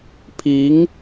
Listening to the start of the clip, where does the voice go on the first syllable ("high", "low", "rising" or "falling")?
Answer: rising